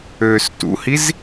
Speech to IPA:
øː s t ṵ h i z

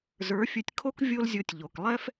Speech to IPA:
z ə˞˨˦ fʲ ɵ˧ tʲ kʰ o˦ k vʲ o˦ l zʲ o˧ tʲ ʎ o˨ k lˠ ɛ˦ f

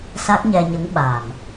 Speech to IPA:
s a˦˥ k̚ ɲ ɛ˧ ɲ ə˧˥ ŋ ɓ a˨˩ m

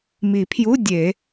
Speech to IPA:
m i˨˩˦ pʰ j u˧˥˧ dʲ e˨˩˦

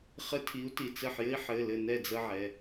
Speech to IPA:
χ ɘ˦ tʰ i˨˥ u̯ t i˩˧˩ t͡s ɘ˧˩ ħ j ɘ˦ i̯ ħ ɘ˩˧˩ l ɘ˧˩ n ɛ˥˨ d͡z ə˦ ʕ ɛ˩˧˩

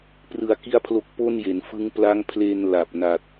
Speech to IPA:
p r ɯ˧ a̯ k i˥˩ a̯ pʰ l o˦˥ k̚ p o˥˩ n j e˩˦ n f ɯ˦˥ ŋ p l a˦˥ ŋ pʰ l eː˧ n l a˨˩ p̚ n a˨˩ t̚

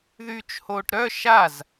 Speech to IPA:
ð yː t͡ʃ h oː ʈ ɾ œ ʃ a z

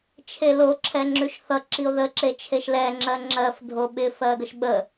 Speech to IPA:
t͡ʃʰ e l o ǁʰ ɛ ŋ͡ǁ ʉ ʃ θ ʌ ǁ i o̯ ð ə ǁ e t͡ʃʰ e ʃ l ɛ ŋ͡ǁ ɜ ŋ͡ǁ ɜ f dʱ o ɓ ɪ f ɜ ɡ ə ʃ ɓ ə

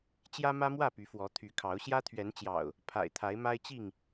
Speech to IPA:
t͡ɕ j ä˦ m ä˦ m w ä˥˨ p y˨˦ f w ɔ˨˦ t̪ʰ y˨˦ kʰ ɑ˨˦ ʊ̯ ɕ j ä˦ t̪ʰ ɥ ɛ˨˦ n t͡ɕ j ɑ̰˨˩ ʊ̯ | pʰ a̰˨˩ ɪ̯ t̪ʰ a˨˦ ɪ̯ m a˦ ɪ̯ t͡ɕ i˥˨ ŋ

